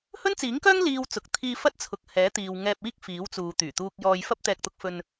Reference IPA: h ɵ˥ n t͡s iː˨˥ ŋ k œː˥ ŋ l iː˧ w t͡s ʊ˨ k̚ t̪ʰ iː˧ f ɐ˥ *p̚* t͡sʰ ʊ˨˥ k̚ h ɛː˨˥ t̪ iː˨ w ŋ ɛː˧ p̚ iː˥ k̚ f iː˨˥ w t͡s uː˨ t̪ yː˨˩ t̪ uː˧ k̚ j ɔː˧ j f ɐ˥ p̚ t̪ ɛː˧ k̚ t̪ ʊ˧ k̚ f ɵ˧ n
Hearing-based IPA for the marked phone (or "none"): t̚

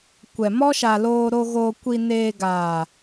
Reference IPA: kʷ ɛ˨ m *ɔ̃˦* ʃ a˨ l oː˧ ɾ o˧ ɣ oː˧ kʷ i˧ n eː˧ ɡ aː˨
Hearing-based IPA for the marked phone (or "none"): ɔ˦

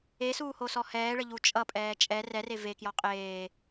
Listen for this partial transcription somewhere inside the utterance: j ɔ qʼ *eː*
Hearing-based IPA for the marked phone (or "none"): eː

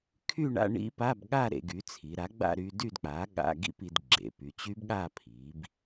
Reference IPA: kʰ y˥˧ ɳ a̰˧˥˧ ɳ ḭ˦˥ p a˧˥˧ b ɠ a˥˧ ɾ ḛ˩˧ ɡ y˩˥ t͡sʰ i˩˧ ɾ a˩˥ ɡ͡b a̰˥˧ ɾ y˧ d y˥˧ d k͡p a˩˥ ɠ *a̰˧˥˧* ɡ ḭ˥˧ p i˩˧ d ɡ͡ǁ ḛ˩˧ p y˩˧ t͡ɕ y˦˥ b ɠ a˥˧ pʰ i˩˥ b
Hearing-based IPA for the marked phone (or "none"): a̰˧˥˧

